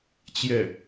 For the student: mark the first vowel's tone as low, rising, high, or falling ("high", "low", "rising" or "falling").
falling